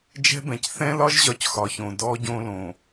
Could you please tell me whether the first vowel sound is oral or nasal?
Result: oral